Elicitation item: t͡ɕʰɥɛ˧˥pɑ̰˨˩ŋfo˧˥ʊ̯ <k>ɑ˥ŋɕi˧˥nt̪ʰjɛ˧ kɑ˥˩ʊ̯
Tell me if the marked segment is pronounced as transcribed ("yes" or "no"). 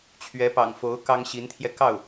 yes